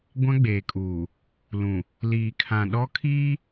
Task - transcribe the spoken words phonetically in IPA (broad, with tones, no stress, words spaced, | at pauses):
ɡʷã˦ɡ͡beː˨kʼuː˨ | lũ˨ | liː˨kʰã˨ɗɔ˦kʰiː˦